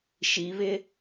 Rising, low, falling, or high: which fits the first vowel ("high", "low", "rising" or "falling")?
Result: rising